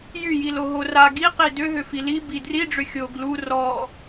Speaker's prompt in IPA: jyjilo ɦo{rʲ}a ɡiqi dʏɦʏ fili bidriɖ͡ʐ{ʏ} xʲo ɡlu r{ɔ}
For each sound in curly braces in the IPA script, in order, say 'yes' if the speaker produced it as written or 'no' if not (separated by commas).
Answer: no, yes, yes